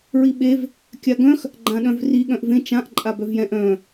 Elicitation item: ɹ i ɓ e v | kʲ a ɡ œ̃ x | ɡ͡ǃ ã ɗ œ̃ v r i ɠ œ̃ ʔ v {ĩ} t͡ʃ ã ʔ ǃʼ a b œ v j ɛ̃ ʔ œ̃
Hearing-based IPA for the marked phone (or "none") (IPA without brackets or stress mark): ẽ